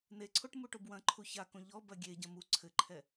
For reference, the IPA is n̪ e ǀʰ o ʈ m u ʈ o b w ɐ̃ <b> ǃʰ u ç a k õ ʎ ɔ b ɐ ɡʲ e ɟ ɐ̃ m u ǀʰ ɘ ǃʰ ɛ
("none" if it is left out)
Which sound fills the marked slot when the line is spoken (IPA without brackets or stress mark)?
none